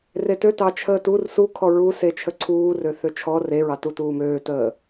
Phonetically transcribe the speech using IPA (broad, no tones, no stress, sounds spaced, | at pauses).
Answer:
r e t ø t ɑ t͡ʃʰ əː t u r s u kʰ ɔ ɹ u s e t͡ʃʰ ə ǀʰ uː r ø θ ø t͡ʃʰ ɔ r e ɹ ɑ t u t uː m øː t əː